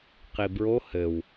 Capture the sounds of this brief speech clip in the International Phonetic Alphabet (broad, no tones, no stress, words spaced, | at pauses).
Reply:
qibɹo hɘw